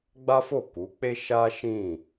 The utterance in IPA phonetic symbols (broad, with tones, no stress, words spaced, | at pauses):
ɡ͡ba˦fo˦˨ku˨˦k͡pe˦ ʃa˦ʃĩ˦˨